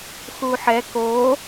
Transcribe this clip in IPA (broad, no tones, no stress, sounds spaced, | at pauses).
x u ħ ɛ k o